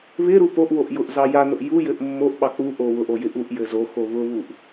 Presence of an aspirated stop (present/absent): absent